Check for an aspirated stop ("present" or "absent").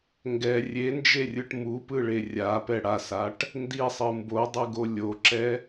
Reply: absent